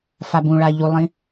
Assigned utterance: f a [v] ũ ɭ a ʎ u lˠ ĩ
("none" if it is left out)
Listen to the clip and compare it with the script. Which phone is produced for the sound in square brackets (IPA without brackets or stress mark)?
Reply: b